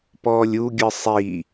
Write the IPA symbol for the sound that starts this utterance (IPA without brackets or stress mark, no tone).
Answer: p